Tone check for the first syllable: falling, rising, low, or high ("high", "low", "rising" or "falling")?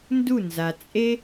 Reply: falling